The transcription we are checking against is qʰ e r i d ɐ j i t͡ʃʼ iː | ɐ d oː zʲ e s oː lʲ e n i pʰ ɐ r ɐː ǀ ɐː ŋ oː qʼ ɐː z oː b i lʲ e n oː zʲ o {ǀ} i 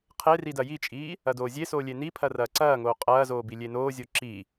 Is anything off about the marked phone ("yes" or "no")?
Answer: yes